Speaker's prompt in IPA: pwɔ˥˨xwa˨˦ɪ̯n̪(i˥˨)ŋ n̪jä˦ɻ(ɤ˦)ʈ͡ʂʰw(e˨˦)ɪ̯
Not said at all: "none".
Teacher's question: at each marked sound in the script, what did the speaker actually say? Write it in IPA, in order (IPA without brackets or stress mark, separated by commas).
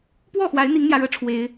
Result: i˨˦, ɤ˦, e˨˦